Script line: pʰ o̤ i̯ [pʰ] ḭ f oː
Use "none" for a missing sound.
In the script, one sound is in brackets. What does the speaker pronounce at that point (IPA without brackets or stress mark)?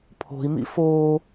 m